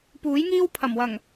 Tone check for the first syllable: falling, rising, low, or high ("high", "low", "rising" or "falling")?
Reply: rising